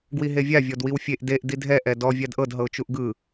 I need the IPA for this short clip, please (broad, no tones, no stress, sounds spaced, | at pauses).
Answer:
ɡ w i ɦ e vʲ a vʲ ɔ d w i w fʲ e ʔ d e ʔ d i dʱ ɛ ʔ ɛ d ɔ vʲ a d ʔ ɤ d ɦ ɤ ʊ̯ t͡ʃ u ʔ ɡ ɯ